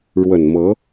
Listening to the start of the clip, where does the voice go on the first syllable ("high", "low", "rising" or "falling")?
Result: low